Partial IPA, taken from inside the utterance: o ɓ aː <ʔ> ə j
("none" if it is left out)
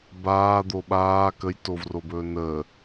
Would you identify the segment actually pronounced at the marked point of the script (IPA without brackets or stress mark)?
k